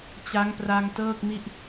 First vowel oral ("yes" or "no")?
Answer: yes